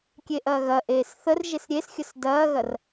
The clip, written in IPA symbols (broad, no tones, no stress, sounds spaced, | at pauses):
kʲ e ʔ ɐː ɣ ɐ ʔ eː s θ ə r ʒ e s ɾʲ e s xʲ ə s d ɐː ɣ ɐ r